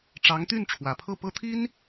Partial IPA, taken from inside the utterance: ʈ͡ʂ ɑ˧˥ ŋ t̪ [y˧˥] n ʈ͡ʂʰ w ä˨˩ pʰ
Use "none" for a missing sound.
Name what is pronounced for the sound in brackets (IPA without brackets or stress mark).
y˥˩